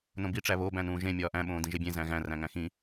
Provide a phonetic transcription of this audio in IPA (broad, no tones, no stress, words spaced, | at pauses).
nõbiʈ͡ʂæ βobæ̃nũː ʒẽ mʲɒːʔæ̃ɓõː dĩʒebʲẽ zæ̃ɣæ̃ ræ̃ŋæ̃xĩ